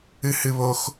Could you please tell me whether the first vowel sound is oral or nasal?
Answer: oral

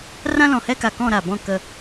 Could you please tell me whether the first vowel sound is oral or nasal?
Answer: nasal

